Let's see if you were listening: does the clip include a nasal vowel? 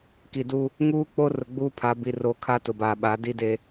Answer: no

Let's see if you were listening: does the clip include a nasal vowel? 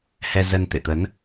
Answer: no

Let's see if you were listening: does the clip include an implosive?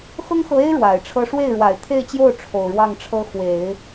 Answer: no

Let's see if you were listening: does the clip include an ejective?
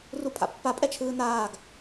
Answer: yes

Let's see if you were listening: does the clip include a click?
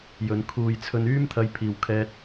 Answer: no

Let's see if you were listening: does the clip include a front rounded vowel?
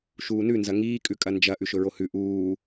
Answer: no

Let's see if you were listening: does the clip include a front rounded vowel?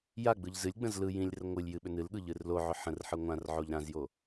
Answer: yes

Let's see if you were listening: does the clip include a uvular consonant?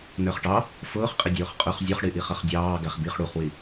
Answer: yes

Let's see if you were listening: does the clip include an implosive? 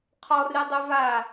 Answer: no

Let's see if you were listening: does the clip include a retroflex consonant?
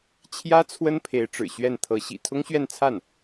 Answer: yes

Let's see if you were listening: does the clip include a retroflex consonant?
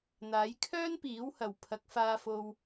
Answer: no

